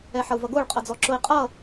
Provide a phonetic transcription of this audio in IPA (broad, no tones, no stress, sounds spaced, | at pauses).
ɛ ħ ʌ u̯ v ʌ ɡ o ɭ qʼ ʌ d͡z ɔ ǁ ʊ i̯ qʼ ʌ